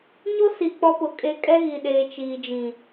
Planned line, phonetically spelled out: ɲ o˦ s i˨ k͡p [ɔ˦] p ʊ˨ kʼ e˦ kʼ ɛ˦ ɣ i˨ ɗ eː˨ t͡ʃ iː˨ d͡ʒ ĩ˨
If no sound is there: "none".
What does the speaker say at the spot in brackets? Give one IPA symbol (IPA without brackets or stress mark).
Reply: ɔ˦